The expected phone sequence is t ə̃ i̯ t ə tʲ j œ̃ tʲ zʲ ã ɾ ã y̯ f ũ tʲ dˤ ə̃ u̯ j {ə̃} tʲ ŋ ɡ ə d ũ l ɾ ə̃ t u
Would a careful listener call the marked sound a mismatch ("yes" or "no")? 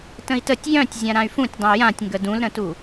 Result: yes